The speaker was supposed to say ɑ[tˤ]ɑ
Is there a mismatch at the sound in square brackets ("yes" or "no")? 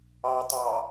no